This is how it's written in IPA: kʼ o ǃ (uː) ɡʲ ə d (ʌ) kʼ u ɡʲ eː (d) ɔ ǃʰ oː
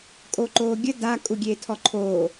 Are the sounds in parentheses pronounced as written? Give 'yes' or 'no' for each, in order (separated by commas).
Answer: no, no, no